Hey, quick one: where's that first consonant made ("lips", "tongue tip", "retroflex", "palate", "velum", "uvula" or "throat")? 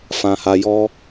lips